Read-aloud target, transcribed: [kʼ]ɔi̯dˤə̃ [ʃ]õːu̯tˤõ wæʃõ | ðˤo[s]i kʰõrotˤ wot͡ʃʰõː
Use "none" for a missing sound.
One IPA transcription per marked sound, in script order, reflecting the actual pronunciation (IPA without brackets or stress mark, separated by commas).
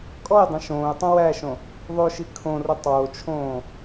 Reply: kʼ, ʃ, ʃ